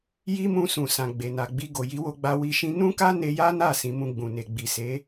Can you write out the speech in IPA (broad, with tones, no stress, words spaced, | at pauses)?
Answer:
ji˦mũ˧ sũ˨ sã˨ɡ͡be˨ na˨ɡ͡bi˧ ɡo˨ji˨˦wo˧ɡ͡ba˧ wi˧ ʃĩ˧nũ˦ka˦ ne˧ja˦na˦˨ sĩ˧mũ˧ɡ͡bũ˨ ne˨ɡ͡bi˨se˨˦